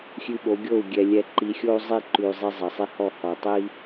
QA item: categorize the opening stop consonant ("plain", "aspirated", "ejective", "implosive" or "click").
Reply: implosive